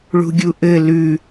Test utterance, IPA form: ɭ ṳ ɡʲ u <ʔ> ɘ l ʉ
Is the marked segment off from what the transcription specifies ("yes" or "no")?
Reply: no